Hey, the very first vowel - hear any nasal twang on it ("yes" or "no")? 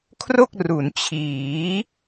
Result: no